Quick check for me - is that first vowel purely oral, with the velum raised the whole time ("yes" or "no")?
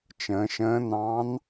no